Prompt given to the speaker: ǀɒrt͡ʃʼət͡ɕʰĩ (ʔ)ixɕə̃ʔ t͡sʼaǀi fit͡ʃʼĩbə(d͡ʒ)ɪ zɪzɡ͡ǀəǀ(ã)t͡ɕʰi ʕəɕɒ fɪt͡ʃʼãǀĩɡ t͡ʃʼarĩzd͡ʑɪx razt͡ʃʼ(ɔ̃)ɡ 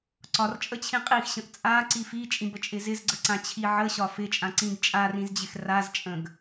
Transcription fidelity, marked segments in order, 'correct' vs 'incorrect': incorrect: qʼ, incorrect: t͡ʃʼ, correct, incorrect: ə̃

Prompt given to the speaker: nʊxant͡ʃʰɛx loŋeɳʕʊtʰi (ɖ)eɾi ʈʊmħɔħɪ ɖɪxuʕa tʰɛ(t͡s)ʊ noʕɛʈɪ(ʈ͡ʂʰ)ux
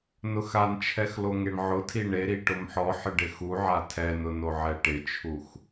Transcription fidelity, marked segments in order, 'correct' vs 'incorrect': incorrect: ɳ, incorrect: n, incorrect: t͡ʃʰ

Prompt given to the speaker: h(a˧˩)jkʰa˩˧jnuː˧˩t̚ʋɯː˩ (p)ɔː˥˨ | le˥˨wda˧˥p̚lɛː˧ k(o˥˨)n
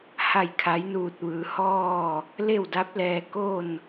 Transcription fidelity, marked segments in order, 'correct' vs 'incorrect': correct, incorrect: h, correct

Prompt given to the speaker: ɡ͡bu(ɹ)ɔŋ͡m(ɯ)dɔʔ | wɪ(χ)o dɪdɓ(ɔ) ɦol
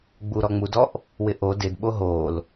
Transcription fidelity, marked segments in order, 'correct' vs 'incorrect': incorrect: ɾ, incorrect: u, incorrect: ʔ, incorrect: o

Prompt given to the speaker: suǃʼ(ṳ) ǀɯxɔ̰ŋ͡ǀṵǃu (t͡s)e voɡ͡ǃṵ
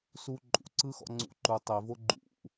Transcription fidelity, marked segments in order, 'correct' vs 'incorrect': incorrect: ṵ, incorrect: tˤ

